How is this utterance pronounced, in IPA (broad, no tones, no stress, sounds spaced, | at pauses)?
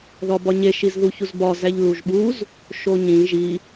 ð ɒ b ɒ ɲ e ʃ i z ð u ç u z b ɒ z æ ʎ l u ʒ ɓ u z | ʃ o ɲ ĩ ʒ i